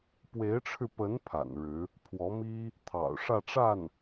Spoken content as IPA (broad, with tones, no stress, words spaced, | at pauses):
pwe˧˥ɪ̯ʈ͡ʂʰɻ̩˧pə˧˥n pʰa̰˨˩nɻɻ̩˧˥ | pʰwɔ˧˥mi˥ | t̪ʰɑ̰˨˩ʊ̯ʂä˥˧ʈ͡ʂa˥˩n